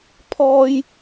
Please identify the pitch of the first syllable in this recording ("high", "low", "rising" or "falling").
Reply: high